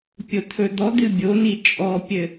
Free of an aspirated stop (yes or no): no